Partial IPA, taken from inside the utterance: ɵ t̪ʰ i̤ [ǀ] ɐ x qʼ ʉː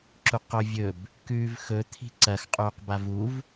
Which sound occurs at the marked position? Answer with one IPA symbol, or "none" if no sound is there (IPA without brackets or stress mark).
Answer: ǀ